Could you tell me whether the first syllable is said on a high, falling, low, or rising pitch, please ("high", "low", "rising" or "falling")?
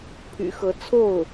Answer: low